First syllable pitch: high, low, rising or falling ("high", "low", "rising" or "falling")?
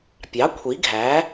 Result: rising